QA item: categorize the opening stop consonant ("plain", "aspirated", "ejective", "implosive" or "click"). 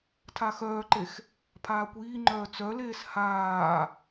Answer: aspirated